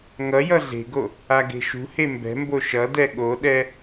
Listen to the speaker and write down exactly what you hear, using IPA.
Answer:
ŋ ʌ j ʌ ɮ e̤ ɡ o | a ɡ e̤ ʃ ṳ h e m b ɛ̤ m b o ʃ ʌ d ɛ ɠ o ɗ ɛ

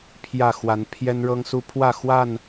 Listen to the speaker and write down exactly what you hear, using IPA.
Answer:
pʰ j ä˥˨ x w a˨˦ n pʰ j ɛ˦ n ɻ ɤ˦ ŋ s u˦ pʰ w ä˥˨ x w a˥˨ n

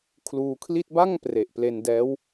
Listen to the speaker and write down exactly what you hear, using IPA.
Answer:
kʰ l uː˧ kʰ l i˥˩ t̚ b a˥˩ ŋ p r e˨˩ ʔ p l e˧ n d ɛː˦˥ w

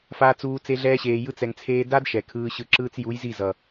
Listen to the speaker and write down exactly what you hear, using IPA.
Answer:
f a˧ t͡s uː˧ t͡s e˧ ɮ ɛː˧ ɕ eː˨ j ɯ˧ t͡s ɛ˨ ŋ t͡sʰ eː˧ d a˦ d ʃ ɛ˨ kʰ ɯː˧ ɕ ɯ˧ ǁ ɯː˧ t͡s j u˨˦ j z i˦˨ z ʌ˨

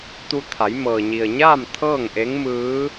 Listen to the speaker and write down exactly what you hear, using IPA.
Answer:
t̪ u˧ t̪ʰ a˩˧ j m ɤː˩ ɲ i˩ ə̯ ɲ aː˥˨ m t̪ʰ ɤː˥˨ ŋ ʔ e˧˥ ŋ m ɯː˧˥

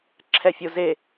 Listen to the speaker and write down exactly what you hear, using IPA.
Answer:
ǁʰ ɛ fʲ o z e

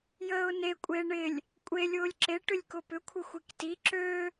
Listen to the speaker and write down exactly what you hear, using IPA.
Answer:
j əː ʊ̯ n e kʷʼ e ɳ ɪ lʲ | kʷʼ e lʲ ʊː lʲ ǁ e ʈ ʏ lʲ k ʊ p ʏ kʷʰ ɪ xʷ i k t i ǁ ø

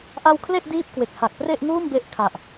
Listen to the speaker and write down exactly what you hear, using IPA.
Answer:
ʔ a˧ w kʰ l e˥˩ ʔ d iː˥˩ p̚ k w e˨˩ k̚ h a˨˩ k̚ p r e˥˩ ʔ ŋ uː˥˩ m b e˦˥ ʔ kʰ a˨˩ ʔ

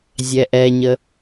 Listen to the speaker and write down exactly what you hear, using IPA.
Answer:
zʲ ɛ ʔ ɛ ɲ ə

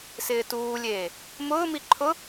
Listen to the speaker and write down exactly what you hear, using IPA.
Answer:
s ɪː t uː lʲ eː | m ʊː m i ǃʰ ʊ

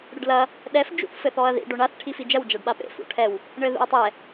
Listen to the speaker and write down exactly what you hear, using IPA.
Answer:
ɽ ɘ ɖ l ɐ | ɗ ɛ f d͡ʒ ṵ θ f ɘ θ ɔ ɐ̯ ð ḭ ɖ o ɳ a θ ʈʰ i f i d͡ʒ ɐ w d͡ʒ a ɖ ɓ a p ḛ f ṵ ʈʰ ɛ w | ɳ ɘ ð ṵ ɐ̯ tˤ ɛ

